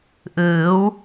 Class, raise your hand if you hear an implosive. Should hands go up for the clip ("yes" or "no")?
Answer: no